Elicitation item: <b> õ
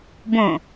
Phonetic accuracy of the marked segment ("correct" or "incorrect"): correct